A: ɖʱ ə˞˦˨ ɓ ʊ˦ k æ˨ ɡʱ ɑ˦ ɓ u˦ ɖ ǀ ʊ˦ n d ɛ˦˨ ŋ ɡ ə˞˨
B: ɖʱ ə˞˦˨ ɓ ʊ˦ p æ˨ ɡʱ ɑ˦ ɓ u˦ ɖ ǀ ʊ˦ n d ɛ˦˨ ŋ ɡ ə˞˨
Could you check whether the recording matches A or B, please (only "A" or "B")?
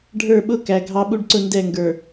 A